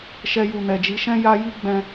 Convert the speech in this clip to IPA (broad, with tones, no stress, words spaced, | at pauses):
ʃɛ˧ju˨nɛ˨d͡ʒi˨˦ ʃɛ̃˦ja˦ ji˦ɡ͡bɛ̃˧